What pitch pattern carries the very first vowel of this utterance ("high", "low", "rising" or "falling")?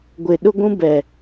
low